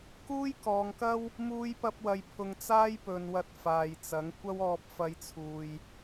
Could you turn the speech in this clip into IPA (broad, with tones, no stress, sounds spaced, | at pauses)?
k uː˥ j k ɔː˨˧ ŋ k ɐ˥ w | m uː˥ j p ɐ˥ p̚ w ɐ˧ j pʰ ʊ˧ ŋ t͡s aː˥ j p ɵ˨ n w ɐ˧ t̚ f aː˨ j t͡s ɐ˨˥ ŋ kʷ ɐ˥ w ɔː˧ p̚ f ɐ˧ j t͡sʰ uː˨ j